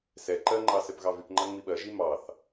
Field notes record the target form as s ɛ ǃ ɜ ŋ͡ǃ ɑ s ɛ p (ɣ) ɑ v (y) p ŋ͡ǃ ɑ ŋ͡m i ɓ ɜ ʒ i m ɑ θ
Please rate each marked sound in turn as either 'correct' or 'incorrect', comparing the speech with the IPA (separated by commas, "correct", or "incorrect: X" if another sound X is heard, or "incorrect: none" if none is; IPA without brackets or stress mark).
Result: correct, correct